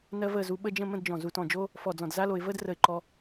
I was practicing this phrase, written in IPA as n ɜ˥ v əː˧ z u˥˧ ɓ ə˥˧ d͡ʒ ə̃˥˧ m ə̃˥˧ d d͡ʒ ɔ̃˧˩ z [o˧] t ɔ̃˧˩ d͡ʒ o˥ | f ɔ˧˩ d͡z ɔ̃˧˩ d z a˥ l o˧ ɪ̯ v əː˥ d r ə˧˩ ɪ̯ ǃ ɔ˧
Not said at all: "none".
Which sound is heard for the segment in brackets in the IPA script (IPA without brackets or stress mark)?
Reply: u˧